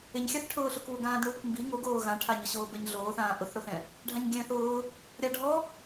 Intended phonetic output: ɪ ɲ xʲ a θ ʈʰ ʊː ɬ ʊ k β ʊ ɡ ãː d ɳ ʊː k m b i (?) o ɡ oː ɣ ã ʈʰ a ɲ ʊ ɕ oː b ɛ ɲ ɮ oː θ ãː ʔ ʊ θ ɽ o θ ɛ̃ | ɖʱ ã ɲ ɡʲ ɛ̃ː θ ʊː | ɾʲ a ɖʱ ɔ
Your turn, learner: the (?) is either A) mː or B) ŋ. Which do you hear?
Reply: B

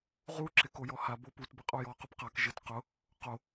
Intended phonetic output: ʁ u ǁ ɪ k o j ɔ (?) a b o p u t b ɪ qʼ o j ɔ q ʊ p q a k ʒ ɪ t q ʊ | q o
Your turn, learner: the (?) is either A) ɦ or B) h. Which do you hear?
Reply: B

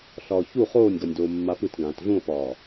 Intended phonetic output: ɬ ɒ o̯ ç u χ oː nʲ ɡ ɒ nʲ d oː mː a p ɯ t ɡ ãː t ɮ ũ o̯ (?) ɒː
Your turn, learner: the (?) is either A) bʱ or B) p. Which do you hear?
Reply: B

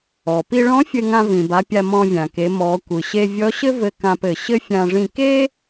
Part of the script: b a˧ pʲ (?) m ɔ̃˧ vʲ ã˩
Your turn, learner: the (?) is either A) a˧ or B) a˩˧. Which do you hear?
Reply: A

